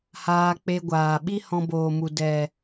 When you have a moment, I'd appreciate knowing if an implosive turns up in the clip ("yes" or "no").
yes